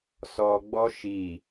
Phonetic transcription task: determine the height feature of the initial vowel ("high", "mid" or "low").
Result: mid